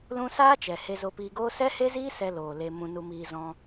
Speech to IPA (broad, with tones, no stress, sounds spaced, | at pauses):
l ũ˦ s aː˦ t͡ʃ ɛ˨ h e˧ z o˧ p iː˧ ɡ oː˦ s ɛ˦ h e˦ z iː˦ s ɛ˧ l oː˨ l e˧ m ũ˧ n u˧ m iː˧ z ɔ̃˧